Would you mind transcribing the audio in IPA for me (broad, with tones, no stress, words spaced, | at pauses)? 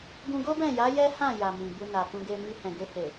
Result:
ɡũ˧ɡo˦bɛ̃˦˨ja˨˦ jɛ˦hã˦˨ja˨ mĩ˨bu˧na˨ kũ˧ɡe˧ mi˧hɛ̃˨ɡe˧he˨